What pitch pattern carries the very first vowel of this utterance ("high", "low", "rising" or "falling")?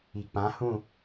low